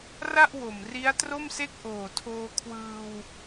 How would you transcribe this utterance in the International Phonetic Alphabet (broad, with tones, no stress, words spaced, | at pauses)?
ra˥˩ʔ wo˨˩m ri˦˥a̯tro˥˩mse˥˩k̚ ʔoː˨˩tʰoː˧kʰwɯː˧w